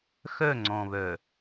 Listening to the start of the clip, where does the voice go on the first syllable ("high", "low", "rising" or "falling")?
falling